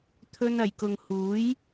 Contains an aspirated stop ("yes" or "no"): yes